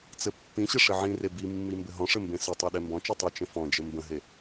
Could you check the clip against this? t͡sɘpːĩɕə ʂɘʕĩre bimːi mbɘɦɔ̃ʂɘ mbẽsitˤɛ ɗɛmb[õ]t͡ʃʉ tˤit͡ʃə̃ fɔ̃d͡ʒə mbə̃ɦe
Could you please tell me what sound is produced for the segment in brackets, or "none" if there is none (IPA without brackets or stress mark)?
ɔ̃